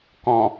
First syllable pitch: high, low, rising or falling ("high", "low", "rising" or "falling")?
low